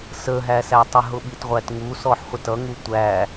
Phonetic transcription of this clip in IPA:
s ə ɦ æ s æ tˤ ɪ ɦ ʊ ɓ i t ʁʷ æ t ŋ u s ɔ ħ χʷ ə t ʌ ŋ u tʷ æ

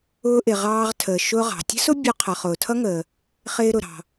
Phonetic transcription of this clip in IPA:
ʊː˧ ʔ ɪ˩ ʁ ɑː˧ ʁ tʰ əː˩ ʃ ʊː˧ ʁ ɑ̤˩ tʲ ə̤˥ s ʊ˥ bʲ u˧ qʰ ʌ˩ χ ʊː˩ tʰ ʌ˥ ŋ əː˩ | χ ɪː˧ ɾ ʊ˩ ɾ ɑ̤˩

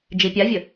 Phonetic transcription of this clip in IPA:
d͡ʒ i pʲ a vʲ ə

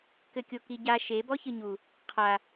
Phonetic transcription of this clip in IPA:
k ɘ kʲ o k i ɟ a ʃ e b ɔ ç ɨ ɲ u | qʰ a

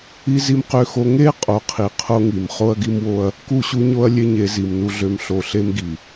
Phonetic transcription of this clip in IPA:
i˦ z i˦ m q ø˦ x o˦ ŋ e˦ qʼ o˨˦ qʰ i˨ qʰ o˦ ŋ i˨ m χ o˦ ɐ̯ ɡ i˦ m w o˦ ɐ̯ | k u˦˨ ɕ u˦ ɲ o˦ ɐ̯ lʲ e˦ ɲ e˨˦ z i˨ m n u˦ ɮ ø˦ m ɬ o˨ ɬ e˦ m ɡ i˨

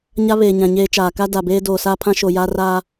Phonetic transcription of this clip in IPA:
ɲ a˦ β eː˨ ɲ ã˨ ɲ eː˦ t͡ʃ aː˨ k a˦ d a˨ b eː˦ d oː˨ s aː˦ pʰ ã˦ ʃ o˨ j a˦ r a˦

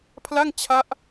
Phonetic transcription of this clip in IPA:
pʰ l a˥˩ ŋ t͡ɕʰ a˦˥ ʔ

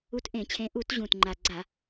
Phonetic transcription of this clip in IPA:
u˨˦ t ʔ ẽ˧˩˧ t͡ɕʰ ẽ˨˦ ʔ u˧˩˧ t ʑ ũ˨˩ t ŋ͡ǃ a˨˩ ɡ͡ǀ a˧˩˧

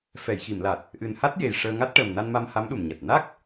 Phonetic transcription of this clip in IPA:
f ɛ˨˩˨ j x i˨˩˨ m l a˨˩ t̚ | ʔ ɨ˨˩ n h a˦˥ t̚ j e˨˩ j ʂ əː˧ ŋ a˦˥ t̚ ʈ əː˨˩ m n a˧ n m a˧ m h a˧˥ m ɗ u˨˩ m ɲ a˨˩ t̚ n a˦˥ k̚

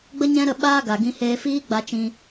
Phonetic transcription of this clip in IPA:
ɡ͡b ə˦ ɲ ɛ̃˦ ɾ ə˦˨ ɓ aː˦ ɡ a˨ ɡ ĩ˧ h eː˧ f iː˦ ɡ͡b a˧ t͡ʃ ĩ˧

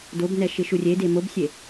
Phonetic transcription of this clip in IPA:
d o b n ɛ ʃ ɪ ʃ u rʲ e d e m o b sʲ e

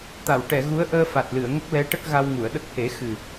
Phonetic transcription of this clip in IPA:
t̪ a˨˩˨ w ʈ ɛ˨˩˨ ɣ u˧˥ ə̯ ʔ əː˧ f a˨˩ t̚ l ɨ˨˩˨ ə̯ ŋ ə˦˥ k̚ l ɛ˧˥ ʈ ə˦˥ k̚ ɣ a˧ w ŋ u˨˩˨ ə̯ ɗ ə˦˥ k̚ h e˨˩˦ x ɨ˨˩

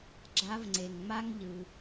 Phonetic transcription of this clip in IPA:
ɡ͡ǁ a˧˥ v ŋ͡ǀ e˩ ŋ ŋ͡m a˥ ŋ ʎ ɯ˩

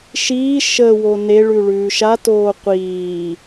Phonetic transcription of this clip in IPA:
ʃ iː ʃ ə w o n e ɭ ʉ ɭ ʉː ʃ a t oː qʷ iː

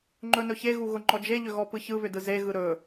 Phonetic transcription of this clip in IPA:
ŋ͡ǃ ɵ n ɵ ç e ɣ u ɣ ʊ ŋ͡ǃ ɔ d͡ʒ e ʎ ʏ ɣ ɔ p ɯ ç ɯ β ʏ d ɯ z e ɣ ɯ ɾ ɵ

